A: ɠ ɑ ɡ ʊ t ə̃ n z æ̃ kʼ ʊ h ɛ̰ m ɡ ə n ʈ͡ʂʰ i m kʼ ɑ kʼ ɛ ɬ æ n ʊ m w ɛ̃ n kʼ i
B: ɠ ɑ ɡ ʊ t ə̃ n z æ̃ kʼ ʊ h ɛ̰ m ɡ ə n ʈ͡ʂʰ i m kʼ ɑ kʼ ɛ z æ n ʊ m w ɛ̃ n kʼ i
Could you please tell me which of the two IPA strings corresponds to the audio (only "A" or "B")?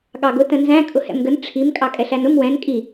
A